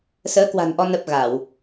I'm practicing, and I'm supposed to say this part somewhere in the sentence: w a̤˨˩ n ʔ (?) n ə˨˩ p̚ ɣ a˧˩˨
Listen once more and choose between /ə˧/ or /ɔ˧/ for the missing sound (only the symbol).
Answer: ɔ˧